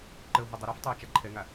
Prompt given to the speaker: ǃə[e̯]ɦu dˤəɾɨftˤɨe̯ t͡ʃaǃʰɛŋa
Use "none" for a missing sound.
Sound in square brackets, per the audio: o̯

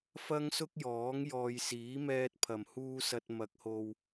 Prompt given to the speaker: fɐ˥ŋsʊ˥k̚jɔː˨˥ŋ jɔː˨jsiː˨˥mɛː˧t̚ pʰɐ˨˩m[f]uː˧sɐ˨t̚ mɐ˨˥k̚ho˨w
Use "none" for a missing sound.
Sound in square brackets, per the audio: h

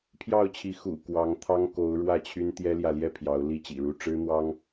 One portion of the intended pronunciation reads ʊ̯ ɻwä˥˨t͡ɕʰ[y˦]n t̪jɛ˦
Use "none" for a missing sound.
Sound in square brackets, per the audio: y˦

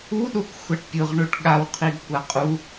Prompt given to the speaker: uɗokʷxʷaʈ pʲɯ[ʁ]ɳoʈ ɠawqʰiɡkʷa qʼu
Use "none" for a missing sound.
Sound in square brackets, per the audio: ʁ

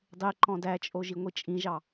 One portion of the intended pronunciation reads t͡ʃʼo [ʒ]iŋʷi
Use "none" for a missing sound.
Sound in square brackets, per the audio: ʒ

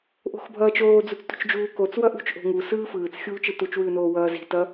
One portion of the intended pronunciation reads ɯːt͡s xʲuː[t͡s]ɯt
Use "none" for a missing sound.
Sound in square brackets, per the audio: t͡ʃ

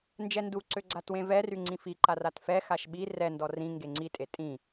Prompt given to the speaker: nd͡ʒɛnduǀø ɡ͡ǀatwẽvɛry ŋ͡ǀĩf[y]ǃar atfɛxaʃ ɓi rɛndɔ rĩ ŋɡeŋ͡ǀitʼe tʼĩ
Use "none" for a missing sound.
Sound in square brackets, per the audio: i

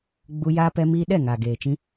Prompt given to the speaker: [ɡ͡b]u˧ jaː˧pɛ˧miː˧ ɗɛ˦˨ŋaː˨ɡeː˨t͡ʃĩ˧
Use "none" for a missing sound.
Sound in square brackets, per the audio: ɡ͡b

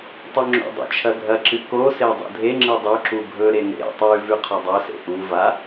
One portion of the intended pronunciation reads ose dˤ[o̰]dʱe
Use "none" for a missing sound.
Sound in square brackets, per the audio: ṵ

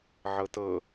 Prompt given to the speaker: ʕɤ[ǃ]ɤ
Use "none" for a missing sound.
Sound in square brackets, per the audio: t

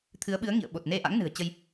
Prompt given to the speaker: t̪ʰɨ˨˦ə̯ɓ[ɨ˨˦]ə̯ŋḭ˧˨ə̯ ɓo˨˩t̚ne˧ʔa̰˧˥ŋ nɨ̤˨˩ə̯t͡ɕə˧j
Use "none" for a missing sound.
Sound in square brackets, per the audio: ɨ˨˦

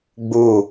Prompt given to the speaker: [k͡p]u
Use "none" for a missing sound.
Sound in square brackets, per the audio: ɡ͡b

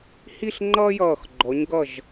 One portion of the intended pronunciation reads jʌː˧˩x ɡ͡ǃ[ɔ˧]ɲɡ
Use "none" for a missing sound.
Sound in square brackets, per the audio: ɔ˩˧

